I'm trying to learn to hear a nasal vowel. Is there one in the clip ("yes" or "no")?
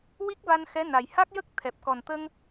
no